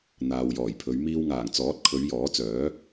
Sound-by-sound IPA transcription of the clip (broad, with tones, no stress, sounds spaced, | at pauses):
n̪ aː˨ w j ɔː˨˩ j pʰ ɵ˨˧ ɥ m iː˧ w ŋ aː˨˩ ŋ t͡s ɔː˨˥ t̚ kʰ ɵ˨˧ ɥ j ɔː˨˥ t͡s œː˨˥